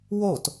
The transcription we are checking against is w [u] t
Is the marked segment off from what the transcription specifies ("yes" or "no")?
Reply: yes